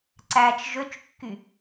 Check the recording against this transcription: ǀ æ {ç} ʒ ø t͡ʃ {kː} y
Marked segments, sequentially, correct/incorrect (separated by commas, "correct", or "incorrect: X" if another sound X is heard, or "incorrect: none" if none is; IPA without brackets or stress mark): incorrect: t͡ʃ, correct